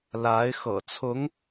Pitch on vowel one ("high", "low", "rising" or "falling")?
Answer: rising